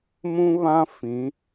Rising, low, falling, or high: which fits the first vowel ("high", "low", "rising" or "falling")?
high